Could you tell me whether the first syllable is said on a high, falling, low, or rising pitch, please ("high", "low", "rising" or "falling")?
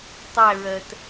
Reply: falling